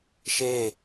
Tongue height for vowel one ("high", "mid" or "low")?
mid